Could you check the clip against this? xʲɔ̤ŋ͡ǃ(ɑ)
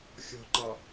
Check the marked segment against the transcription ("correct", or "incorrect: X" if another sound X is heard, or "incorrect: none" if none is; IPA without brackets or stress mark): correct